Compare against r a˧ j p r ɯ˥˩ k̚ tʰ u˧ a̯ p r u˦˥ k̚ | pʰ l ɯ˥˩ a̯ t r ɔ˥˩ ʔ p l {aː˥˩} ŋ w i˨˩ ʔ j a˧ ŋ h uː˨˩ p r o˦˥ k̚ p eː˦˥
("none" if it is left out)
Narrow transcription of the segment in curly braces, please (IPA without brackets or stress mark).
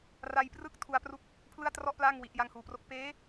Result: aː˥˩